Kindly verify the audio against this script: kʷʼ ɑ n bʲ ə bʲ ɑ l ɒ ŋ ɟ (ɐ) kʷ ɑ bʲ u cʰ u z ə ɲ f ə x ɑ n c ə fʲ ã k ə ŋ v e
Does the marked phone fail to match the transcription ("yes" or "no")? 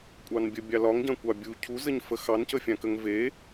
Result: yes